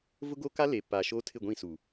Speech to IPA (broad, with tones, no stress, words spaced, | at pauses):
vʊ˦ɡo˦ka˦ le˨ pa˨ ʃoː˦tʰɪ˦˨ɡʷĩ˦˨su˨